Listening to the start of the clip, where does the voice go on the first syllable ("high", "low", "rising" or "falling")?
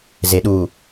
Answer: low